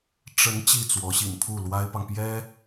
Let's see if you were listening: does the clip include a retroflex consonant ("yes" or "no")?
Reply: yes